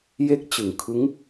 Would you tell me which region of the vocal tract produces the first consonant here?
palate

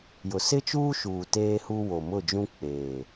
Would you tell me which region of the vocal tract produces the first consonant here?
palate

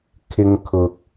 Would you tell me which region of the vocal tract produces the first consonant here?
velum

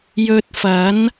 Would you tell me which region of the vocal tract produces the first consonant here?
palate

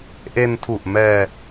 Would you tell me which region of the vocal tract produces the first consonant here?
throat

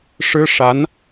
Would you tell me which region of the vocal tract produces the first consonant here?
retroflex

